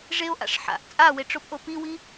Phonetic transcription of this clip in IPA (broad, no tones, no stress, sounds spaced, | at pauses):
ʐ e o̯ ʔ a̰ ʂ ħ a̰ ʔ t͡sʼ a w e ʈ͡ʂ o p ʔ o p i w i